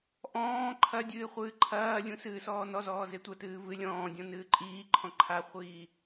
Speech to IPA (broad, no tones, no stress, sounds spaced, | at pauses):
ʔ ɔ̃ː ǃʰ ɐ dʲ ɨː χʷ ɨː ǃʰ ɐː lʲ ũ s ɨː s ɔː n ɔ z ɔː z e tʷ ɐ t ɨː v ɨ lʲ ɔ̃ː dʲ ɔ̃ n ɨː ǃʼ iː ǃʰ ɔ̃ ǃʰ a χʷ iː